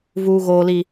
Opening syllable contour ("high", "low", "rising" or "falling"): low